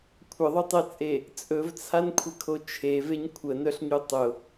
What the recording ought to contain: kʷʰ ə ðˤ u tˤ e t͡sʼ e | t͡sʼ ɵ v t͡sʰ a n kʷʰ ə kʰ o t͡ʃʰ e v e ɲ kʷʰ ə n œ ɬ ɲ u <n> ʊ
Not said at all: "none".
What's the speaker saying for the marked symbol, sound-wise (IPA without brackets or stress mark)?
tˤ